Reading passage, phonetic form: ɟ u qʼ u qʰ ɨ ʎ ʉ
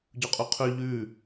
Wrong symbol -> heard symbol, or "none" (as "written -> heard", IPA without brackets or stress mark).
ɨ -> ʉ